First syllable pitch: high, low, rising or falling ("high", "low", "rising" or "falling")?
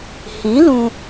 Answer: rising